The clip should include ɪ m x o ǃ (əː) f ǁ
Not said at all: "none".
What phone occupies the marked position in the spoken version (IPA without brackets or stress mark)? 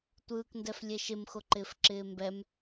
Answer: ɪː